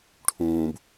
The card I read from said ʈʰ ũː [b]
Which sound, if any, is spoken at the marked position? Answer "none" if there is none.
b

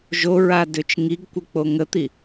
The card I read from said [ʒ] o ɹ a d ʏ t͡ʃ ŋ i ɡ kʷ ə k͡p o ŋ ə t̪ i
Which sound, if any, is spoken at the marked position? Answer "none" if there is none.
ʒ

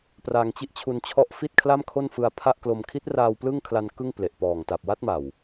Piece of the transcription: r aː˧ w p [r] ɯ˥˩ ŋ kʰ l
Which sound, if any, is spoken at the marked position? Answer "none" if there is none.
l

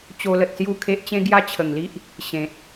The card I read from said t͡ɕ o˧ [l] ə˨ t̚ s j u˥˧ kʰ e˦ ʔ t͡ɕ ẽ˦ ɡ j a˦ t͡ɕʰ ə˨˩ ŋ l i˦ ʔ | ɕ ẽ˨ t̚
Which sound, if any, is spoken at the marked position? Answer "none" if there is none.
l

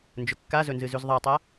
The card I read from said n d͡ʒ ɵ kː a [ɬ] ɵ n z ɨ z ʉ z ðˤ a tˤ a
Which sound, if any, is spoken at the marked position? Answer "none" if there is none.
z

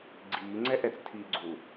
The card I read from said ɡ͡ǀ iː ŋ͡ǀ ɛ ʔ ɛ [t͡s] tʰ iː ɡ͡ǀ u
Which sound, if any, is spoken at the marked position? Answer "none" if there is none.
t͡s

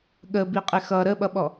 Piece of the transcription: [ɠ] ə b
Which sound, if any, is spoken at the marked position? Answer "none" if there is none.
ɠ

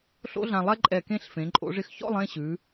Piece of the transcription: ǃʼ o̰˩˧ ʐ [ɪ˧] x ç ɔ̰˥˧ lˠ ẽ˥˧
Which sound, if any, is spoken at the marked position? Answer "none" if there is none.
ɪ˧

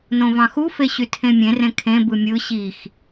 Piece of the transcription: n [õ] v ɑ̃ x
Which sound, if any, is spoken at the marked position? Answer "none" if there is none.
õ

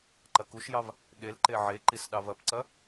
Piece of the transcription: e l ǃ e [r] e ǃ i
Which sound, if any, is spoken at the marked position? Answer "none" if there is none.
ʕ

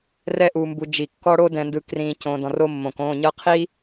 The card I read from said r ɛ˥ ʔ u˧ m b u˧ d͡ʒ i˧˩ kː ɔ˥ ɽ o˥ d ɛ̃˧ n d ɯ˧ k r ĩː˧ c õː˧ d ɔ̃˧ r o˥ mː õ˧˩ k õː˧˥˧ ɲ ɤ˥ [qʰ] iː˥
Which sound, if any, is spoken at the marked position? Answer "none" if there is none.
qʰ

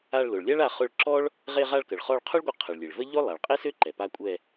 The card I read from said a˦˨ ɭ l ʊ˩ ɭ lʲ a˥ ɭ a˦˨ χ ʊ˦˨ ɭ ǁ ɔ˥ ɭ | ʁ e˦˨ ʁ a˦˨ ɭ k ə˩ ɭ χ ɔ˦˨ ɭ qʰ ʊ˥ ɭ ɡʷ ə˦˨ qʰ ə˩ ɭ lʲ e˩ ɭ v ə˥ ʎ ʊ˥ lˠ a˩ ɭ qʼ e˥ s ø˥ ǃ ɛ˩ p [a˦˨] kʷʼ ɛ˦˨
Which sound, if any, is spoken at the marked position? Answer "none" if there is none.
a˦˨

